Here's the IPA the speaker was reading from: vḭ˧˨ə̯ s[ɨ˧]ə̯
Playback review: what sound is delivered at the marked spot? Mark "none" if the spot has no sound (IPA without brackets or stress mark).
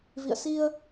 i˧